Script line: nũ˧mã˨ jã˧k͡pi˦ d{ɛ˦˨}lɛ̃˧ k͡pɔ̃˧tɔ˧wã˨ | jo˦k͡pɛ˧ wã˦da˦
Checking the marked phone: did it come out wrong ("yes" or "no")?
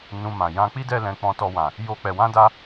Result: yes